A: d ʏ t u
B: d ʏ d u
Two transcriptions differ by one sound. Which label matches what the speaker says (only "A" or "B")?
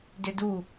B